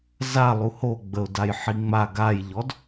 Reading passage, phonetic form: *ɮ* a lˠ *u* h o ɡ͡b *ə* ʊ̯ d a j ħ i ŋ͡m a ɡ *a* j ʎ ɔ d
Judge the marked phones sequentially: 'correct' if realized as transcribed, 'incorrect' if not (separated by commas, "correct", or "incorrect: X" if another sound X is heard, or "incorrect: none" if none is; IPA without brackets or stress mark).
incorrect: z, correct, correct, correct